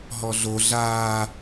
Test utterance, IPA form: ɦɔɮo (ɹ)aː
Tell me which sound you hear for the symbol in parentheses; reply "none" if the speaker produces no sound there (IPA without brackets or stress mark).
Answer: ɮ